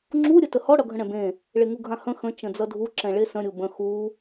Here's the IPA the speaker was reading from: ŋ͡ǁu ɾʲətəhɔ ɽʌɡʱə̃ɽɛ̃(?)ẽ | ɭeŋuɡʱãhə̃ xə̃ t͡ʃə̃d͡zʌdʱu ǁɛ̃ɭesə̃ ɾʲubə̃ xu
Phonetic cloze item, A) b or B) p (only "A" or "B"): A